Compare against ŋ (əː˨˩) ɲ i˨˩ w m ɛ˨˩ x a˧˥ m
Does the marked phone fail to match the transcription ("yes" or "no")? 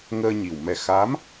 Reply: yes